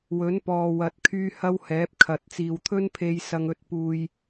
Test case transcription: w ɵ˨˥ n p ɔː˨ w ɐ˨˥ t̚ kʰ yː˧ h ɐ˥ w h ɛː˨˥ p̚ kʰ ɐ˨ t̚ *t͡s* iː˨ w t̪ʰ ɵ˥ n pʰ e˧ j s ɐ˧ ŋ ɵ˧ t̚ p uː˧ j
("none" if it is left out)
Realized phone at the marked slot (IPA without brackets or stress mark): t͡s